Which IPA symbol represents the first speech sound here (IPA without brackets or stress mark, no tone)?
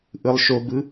ʔ